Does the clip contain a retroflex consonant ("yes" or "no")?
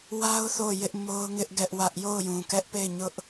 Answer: no